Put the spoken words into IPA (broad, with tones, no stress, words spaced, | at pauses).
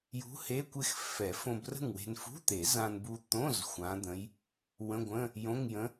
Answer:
jṳ˧˥ he˧˥˧kʷɪ˥˨x fɛ˨˩˦ fõ˧brə̤˥˨ŋwe̤˧n fṳ˧˥˧t̪e˨˩˦z ã˧nbu˧t̪õ˧˥˧z xʷã˧˥d̪ə̃˧˥j | wə̃˧˥˧ɡʷə̃˧˥˧ | jõ˧˥˧ŋjə̃˧˥